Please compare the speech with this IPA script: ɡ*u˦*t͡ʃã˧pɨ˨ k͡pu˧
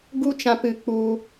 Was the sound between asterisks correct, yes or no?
yes